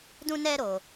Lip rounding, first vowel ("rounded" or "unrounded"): rounded